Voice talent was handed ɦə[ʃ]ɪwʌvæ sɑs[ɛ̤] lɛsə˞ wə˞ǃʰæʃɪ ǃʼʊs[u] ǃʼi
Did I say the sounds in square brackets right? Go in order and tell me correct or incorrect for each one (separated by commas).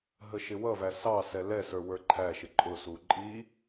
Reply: correct, incorrect, correct